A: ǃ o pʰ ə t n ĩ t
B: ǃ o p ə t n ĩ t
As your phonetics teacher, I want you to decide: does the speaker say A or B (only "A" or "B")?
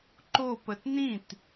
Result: B